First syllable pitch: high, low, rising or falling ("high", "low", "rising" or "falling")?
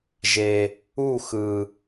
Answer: low